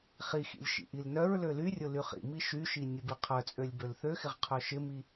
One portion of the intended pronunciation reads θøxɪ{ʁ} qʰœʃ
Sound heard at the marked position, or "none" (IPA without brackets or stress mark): ʁ